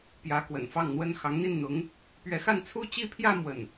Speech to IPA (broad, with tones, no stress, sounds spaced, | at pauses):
p j ä˧˥ k w ə̰˨˩ n f ɑ˥˩ ŋ n̪ w ə˥ n x ɑ˧˥ ŋ n̪ i˥˩ n n̪ ʊ˧˥ ŋ | p ɥ ɛ˧˥ x a˥˧ n t͡sʰ u˥˧ t͡ɕ i˥˧ pʰ j ä˥˧ m w ə˥˩ n